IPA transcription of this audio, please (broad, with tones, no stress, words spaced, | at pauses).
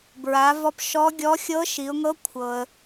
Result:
bɹa˩˧vɔ˧p ʃɔ˧˥ɡʲɔ˧˥ xʲɤ˧˥ʃi˩˧ʊ̯ŋɤ˧˥ kʷʰɤ˩ə̯